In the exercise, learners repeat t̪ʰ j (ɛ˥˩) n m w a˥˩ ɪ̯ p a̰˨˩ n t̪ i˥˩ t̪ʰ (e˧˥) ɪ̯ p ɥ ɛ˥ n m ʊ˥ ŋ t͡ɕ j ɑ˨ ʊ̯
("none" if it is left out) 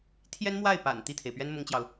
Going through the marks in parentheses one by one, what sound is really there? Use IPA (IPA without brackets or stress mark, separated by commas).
ɛ˥, e˩